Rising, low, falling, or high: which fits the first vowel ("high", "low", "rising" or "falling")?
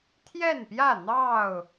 falling